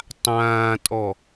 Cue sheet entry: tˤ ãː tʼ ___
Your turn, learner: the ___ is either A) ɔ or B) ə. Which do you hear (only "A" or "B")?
A